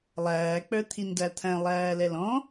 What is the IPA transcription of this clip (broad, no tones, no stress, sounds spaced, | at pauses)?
lˠ æː k͡p ə˞ t̪ʰ i n d æ t̪ʰ æ̃ lˠ æː l ɛ l ɔ̃